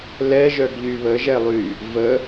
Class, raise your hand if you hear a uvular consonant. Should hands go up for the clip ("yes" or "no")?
no